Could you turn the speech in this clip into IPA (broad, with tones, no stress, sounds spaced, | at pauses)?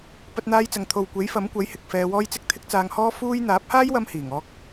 p ɐ˧ t̚ n̪ aː˧ j t͡s ɐ˨ ŋ t̪ʰ o˨ w kʷ e˨˥ j f ɐ˨˥ m kʷ ɐ˨˥ j h ɪ˨ k̚ f ɛː˧ w ɔː˥ j t͡s ɪ˥ k̚ t̪ʰ ɪ˥ k̚ t͡s aː˧ ŋ h ɔː˥ f uː˥ j n̪ aː˨˥ p̚ h aː˥ j w ɐ˧ m h iː˨˩ ŋ ɔː˥ k̚